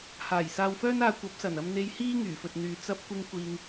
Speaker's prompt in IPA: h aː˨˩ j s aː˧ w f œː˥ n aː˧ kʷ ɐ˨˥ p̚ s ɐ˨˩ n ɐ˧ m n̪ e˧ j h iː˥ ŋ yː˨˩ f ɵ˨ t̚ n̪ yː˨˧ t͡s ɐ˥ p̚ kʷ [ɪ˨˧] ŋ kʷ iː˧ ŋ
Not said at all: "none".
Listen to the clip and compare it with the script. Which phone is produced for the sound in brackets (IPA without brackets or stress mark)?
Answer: ɪ˥